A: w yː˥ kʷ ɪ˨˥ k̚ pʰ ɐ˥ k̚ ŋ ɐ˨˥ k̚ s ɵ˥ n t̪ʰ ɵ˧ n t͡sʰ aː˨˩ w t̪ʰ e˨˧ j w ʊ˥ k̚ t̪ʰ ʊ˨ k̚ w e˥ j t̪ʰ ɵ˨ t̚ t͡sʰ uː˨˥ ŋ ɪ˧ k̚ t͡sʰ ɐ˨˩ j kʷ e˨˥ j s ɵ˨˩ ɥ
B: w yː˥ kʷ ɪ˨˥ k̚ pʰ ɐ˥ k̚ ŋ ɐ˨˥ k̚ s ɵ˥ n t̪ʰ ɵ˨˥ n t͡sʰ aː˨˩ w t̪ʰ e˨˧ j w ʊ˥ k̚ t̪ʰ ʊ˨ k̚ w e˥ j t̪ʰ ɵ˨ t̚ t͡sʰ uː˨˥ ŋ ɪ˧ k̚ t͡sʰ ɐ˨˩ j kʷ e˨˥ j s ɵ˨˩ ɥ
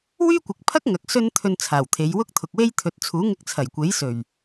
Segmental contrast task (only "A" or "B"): A